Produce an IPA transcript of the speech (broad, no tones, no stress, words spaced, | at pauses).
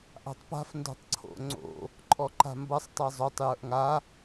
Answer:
ʔa̤tˤpa̤f ndo̤tˤǀʰo̰ ŋ͡ǀo̰ | ǃʼɔǃa̤mbʌsˤ tˤezˤotˤ jə˞ʔŋa